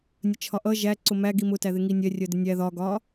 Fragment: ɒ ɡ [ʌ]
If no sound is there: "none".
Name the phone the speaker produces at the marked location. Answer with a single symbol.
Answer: ɒ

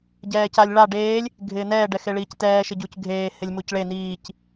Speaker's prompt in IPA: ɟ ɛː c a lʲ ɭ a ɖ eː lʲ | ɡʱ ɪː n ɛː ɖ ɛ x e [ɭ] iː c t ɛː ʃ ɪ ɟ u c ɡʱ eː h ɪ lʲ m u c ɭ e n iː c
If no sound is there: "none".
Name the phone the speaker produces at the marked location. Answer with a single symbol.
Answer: ɭ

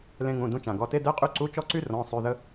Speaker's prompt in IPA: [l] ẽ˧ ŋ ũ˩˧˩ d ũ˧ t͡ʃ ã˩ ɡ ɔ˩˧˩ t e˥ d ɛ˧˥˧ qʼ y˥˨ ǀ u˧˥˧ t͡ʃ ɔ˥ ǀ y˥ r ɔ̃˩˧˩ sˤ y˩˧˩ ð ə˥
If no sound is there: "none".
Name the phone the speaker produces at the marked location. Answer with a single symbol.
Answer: l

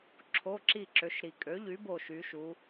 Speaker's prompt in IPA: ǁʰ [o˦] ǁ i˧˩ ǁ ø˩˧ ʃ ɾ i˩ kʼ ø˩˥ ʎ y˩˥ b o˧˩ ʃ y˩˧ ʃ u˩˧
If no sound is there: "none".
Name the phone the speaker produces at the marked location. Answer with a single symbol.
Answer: o˩˧˩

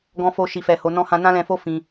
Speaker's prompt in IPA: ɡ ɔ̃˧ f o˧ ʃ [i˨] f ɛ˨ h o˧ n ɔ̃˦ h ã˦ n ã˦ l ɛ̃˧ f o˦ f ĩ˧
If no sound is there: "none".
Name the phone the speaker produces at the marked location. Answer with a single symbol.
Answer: i˨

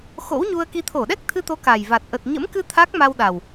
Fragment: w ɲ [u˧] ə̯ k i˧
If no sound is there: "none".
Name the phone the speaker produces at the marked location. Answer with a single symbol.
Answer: u˧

